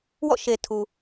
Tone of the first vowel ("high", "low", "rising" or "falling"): falling